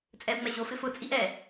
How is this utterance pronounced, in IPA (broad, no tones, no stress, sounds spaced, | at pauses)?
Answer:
t͡sʼ ɛ u̯ ŋ͡m ɛ ʑ o f ɪ f ʊ t͡sʼ i ʔ ɛ